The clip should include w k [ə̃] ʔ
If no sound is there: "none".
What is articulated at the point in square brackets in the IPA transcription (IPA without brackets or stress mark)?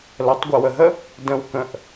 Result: ə̃